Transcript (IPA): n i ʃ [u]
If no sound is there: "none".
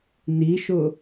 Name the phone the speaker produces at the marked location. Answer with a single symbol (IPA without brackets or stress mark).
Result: ʊ